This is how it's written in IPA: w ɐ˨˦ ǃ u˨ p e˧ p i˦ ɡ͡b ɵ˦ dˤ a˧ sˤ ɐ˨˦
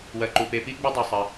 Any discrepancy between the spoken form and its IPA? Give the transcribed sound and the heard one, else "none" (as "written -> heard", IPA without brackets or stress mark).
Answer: none